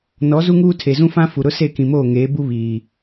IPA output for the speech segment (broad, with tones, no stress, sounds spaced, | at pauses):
n ɔ˨˦ z u˦ ŋ uː˦ tʰ e˨ z ũ˦ f ã˦ f u˨ ɾ ʊ˦ s e˦˨ k ĩ˨ m oː˦˨ ŋ eː˨˦ b u˦ β iː˨